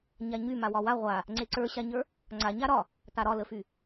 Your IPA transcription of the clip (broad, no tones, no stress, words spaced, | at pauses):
ɲaɲy mawɒwa ʁʷa | ŋ͡ǀeǀə˞ɕaɲə˞ | ŋ͡ǀaɲa ɾɒ | taɾɒləfy